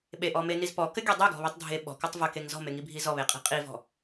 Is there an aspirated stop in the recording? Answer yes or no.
no